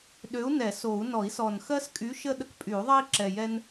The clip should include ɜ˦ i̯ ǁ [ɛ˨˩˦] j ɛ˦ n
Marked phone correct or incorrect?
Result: incorrect